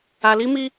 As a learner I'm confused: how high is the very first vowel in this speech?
low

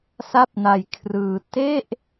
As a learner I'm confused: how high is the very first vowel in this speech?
low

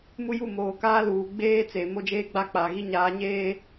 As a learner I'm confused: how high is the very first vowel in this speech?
high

